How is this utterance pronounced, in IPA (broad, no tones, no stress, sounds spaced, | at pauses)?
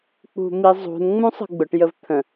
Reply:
k͡p ṳ m i zˤ ṳ n ŋ͡m ũ sˤ ə̤ ɡ͡b ʊ ʈ j ə v t̪ʰ ə̃